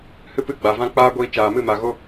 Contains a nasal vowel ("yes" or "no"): yes